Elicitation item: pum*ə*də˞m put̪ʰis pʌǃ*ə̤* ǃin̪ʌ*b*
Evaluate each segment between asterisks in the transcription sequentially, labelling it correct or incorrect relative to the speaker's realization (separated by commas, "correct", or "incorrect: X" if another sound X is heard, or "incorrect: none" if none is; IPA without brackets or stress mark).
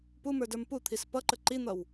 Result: incorrect: ə˞, incorrect: ə, incorrect: w